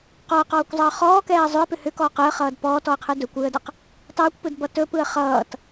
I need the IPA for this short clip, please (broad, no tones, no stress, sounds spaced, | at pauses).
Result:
q ɔ ə̯ q ɔː kʷ zˤ ʌː χ ɔː k ɛː ə̯ zˤ ʏ ə̯ p ʏ h ʏ k ɔː q ɯ ə̯ χ ʌː d p ɔː t ɔ ə̯ qʰ ɯ d ɵ kʷ ɯː ə̯ d ʌ q | tˤ ɯː kʷ p ɯ d b ʌ t ɵ p ɯ ə̯ χ ʌː t